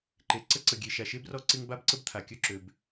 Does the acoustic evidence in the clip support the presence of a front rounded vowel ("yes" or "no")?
yes